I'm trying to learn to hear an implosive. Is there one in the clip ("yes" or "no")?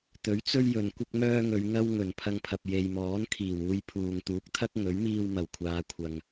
no